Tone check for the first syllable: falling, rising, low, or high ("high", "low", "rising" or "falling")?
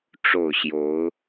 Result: falling